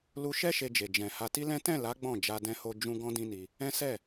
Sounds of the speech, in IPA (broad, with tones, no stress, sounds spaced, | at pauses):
l u˧ ʃ ɛ˦ ʃ e˧ d͡ʒ e˨ d͡ʒ ɛ̃˨ h a˧ t i˦ l ɛ̃˦ t ɛ̃˦˨ l a˨˦ ɡ͡b ɔ̃˦˨ d͡ʒ a˧ d ɛ̃˧ h o˧ d͡ʒ ũ˦ ɡ ɔ̃˦ d ĩ˦ n i˧ | ɛ̃˦ s ɛ˦˨